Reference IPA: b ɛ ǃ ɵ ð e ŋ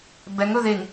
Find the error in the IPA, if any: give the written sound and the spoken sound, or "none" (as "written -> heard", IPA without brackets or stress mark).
ǃ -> ŋ